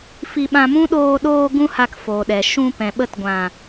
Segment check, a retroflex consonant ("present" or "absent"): absent